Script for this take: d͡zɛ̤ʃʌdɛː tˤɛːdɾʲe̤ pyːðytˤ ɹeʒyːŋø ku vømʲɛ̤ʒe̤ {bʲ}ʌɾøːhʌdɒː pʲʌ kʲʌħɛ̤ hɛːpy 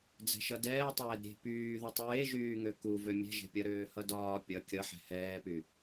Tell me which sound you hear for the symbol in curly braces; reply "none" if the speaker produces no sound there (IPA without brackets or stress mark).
pʲ